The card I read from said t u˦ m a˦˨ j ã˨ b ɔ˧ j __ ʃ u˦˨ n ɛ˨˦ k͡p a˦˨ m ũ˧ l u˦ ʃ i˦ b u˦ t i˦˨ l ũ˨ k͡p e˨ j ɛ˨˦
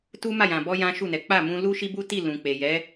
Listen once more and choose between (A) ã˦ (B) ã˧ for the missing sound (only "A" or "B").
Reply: A